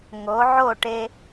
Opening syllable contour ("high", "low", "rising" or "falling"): rising